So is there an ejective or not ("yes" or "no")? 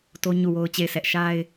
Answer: no